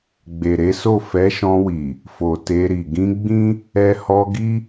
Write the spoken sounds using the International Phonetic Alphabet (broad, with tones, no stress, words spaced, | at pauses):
ɡ͡be˨ɾe˨˦so˦˨ fɛ˨˦ʃɔ̃˧wi˨ | fo˨te˧ɾi˨ ɡĩ˧ɡ͡bĩ˦ | ɛ˧ hɔ˧ ɡi˦